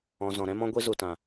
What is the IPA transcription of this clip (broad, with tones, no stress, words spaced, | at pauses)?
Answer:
ɔ̃˨ zɔ̃˨ɾɛ̃˦mɔ̃˦ ɡʷi˧zu˨tã˨